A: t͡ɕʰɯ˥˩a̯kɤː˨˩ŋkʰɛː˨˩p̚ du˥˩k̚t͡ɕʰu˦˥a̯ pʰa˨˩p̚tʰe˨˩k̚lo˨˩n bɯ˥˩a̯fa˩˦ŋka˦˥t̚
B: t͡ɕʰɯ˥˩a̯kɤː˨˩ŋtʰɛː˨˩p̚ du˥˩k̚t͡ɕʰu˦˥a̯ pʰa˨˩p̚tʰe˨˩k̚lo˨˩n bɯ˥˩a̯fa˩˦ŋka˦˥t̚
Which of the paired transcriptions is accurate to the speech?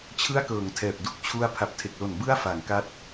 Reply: B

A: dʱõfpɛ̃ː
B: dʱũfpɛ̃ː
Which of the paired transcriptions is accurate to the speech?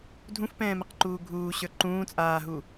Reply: B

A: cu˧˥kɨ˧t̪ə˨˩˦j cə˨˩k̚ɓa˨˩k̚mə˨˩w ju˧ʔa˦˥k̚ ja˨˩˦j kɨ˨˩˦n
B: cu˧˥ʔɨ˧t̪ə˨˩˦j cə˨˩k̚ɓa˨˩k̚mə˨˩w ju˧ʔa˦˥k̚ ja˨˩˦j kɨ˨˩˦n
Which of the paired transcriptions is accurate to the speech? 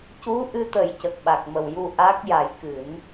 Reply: B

